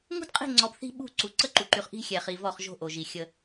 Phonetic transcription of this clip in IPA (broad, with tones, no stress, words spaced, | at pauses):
ŋṳ˦dqʼi̤˦˨ŋ͡ǀɔ˨b θi̤˦ ɓṳ˦˨ǀu˨ ǀə˦ǃu˨ǃy˨χ ʔi̤˦xʲɛ˨χi˨ vɔ˦˨χ ʒo̤˦ʔo˨ʒi˨ xʲə˦